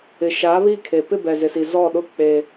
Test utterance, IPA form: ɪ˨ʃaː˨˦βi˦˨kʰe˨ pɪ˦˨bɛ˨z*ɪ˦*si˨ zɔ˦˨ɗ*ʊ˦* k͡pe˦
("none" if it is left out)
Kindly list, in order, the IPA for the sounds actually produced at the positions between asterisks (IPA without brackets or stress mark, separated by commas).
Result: ɪ˨, ʊ˦